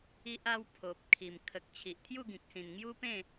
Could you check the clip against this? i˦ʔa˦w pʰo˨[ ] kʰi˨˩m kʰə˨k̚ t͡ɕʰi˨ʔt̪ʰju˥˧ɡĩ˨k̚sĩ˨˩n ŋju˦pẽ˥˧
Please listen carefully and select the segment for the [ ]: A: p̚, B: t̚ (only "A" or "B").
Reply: A